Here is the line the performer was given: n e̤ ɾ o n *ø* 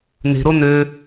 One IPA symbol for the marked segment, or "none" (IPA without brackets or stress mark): ø